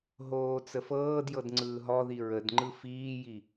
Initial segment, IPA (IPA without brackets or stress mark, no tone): ɦ